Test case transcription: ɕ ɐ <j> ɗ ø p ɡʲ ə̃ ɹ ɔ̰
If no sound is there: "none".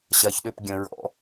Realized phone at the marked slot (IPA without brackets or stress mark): ç